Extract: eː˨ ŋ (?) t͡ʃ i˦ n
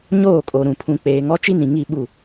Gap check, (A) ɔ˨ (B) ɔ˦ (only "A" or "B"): B